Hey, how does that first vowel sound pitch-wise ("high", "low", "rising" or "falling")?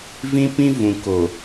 high